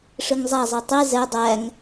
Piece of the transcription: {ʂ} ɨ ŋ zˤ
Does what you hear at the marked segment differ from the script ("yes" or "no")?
no